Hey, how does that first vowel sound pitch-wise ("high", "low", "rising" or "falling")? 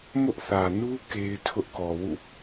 high